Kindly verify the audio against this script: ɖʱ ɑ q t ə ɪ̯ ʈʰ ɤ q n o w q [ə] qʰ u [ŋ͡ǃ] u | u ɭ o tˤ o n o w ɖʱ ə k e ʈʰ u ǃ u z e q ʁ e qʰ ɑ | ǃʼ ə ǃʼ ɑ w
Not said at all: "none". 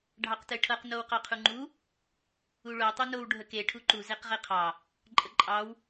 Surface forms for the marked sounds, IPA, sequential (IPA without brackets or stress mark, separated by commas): ɑ, ŋ͡ǃ